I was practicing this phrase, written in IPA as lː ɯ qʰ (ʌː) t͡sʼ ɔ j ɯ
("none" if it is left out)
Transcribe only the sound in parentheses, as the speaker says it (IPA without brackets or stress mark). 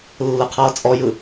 ʌː